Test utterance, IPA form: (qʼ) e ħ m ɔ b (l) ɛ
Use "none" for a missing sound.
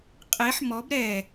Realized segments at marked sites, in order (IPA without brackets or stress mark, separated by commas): qʼ, ɾ